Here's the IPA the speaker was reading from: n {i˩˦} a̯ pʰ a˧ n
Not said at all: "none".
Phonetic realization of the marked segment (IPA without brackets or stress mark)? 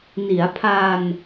i˩˦